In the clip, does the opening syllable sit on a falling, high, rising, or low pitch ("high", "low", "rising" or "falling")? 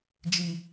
high